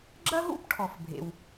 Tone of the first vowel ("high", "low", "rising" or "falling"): high